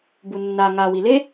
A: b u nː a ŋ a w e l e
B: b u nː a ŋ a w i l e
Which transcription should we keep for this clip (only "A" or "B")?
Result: B